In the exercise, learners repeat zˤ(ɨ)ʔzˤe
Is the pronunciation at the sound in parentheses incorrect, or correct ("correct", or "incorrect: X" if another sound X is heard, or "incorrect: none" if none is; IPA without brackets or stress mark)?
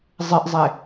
correct